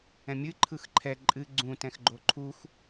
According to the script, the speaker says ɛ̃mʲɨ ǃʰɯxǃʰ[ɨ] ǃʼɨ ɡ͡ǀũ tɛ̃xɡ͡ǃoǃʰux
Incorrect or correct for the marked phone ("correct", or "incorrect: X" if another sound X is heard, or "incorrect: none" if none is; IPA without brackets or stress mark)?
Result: incorrect: ɛ